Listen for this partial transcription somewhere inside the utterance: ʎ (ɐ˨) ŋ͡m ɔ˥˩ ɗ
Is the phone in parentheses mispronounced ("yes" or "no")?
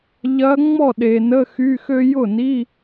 yes